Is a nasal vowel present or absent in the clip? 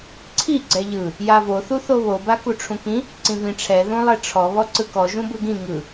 present